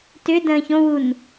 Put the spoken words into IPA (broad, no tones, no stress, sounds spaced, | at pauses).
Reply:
t ʏ d ə̃ː ç õ w u n